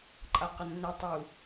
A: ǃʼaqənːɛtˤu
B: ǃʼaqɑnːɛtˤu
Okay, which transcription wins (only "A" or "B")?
A